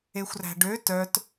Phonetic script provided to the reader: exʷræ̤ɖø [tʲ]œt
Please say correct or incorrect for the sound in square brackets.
incorrect